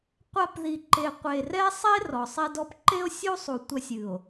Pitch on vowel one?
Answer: high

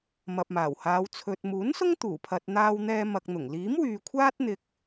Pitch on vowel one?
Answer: low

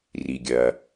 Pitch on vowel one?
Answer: low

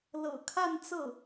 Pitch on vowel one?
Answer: low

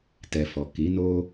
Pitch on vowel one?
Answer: low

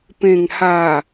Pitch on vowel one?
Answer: low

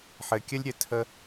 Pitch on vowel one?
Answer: low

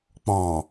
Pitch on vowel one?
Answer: low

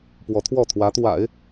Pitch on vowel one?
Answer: rising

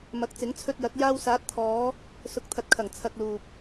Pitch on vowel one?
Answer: rising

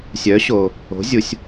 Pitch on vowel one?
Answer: rising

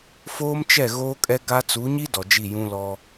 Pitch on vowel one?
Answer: high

